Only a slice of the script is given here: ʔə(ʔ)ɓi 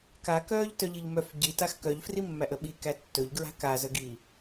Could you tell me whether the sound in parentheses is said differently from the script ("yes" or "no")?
yes